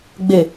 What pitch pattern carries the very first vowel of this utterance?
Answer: low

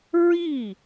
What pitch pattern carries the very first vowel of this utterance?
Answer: falling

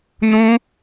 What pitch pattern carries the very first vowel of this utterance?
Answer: high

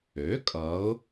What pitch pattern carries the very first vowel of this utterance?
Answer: rising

